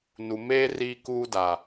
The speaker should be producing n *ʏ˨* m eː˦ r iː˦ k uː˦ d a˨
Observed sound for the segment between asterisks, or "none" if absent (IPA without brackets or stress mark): u˨